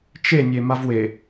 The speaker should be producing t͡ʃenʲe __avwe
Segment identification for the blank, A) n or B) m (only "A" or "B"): B